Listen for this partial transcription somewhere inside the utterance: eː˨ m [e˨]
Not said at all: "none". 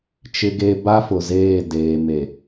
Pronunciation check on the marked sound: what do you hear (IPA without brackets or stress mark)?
e˨